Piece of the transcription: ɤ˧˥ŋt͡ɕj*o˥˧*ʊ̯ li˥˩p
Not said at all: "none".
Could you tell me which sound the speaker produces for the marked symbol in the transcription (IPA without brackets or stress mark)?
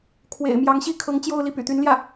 o˥˧